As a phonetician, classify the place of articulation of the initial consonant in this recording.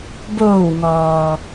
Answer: labial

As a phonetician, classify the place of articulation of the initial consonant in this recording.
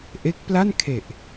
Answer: glottal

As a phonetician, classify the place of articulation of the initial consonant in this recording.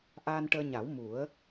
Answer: glottal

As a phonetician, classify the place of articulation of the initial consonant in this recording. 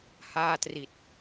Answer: glottal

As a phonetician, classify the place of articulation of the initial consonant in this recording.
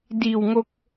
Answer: alveolar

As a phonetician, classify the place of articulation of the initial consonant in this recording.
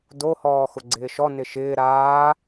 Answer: alveolar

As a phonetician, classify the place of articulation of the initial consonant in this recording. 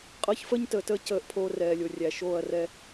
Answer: uvular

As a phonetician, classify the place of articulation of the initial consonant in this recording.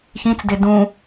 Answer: palatal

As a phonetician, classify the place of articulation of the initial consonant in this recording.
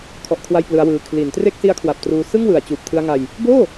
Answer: velar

